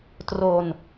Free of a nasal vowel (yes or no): yes